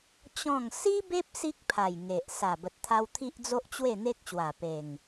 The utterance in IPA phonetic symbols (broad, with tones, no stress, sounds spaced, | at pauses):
t͡ɕ ɔ̃˥˧ ŋ s i˦ b e˦ p̚ s i˦ k̚ pʰ a˨˩ j ŋ e˨ ʔ s a˨˩ b ə˨ t̚ t̪ʰ a˧ w t̪ʰ i˦ ʔ d͡z o˦ ʔ t͡ɕ w e˥˧ n̪ e˦ k̚ ɕ w a˨˩ p e˨˩ ŋ